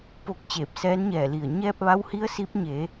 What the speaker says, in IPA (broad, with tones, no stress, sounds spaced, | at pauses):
p o˧˩ k̚ t͡ɕ eː˧˩ p̚ s ɛː˧˥ n ɲ ɛː˧˩ l i˧˩ ə̯ ɲ ɛː˧ p̚ ʋ a˧˥ w h i˧˥ ə̯ s i˧˥ p̚ ɲ e˩˧